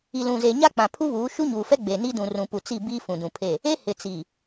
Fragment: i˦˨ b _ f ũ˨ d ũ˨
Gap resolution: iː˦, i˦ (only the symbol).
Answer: iː˦